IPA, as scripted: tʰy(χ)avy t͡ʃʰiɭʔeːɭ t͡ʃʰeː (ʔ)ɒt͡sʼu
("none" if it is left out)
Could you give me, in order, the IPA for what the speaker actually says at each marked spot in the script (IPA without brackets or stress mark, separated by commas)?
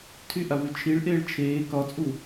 ʔ, k